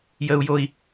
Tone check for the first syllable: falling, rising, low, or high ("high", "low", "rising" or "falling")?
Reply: high